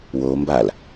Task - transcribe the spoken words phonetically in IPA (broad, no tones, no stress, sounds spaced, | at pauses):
w o m b a l